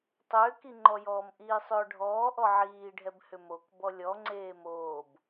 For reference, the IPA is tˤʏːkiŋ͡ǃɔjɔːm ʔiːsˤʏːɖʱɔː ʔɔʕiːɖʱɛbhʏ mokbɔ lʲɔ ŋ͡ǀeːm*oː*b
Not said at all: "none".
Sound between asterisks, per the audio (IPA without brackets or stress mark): oː